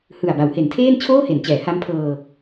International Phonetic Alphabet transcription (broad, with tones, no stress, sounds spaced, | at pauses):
h ɯ˨˩ a̯ b a˩˦ w h e˩˦ n tʰ eː˥˩ n t͡ɕʰ oː˥˩ h e˩˦ n t͡ɕ ɛː˩˦ h a˦˥ m pʰ ɤː˧